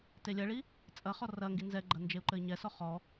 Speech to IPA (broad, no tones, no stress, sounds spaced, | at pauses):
t e lʲ ɐ ɭ i | t͡sʼ ɐ χ ɔ r ɐ ŋ ɡ i n z ɛ ɡ͡ǃ ɐ n d͡ʒ e u̯ ǃ ɘ i̯ ɲ ɛ s ɔ χ ɔ